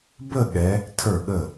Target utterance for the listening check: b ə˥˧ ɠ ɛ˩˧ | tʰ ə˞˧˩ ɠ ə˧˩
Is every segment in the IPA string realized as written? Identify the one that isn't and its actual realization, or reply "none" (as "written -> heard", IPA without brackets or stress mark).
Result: none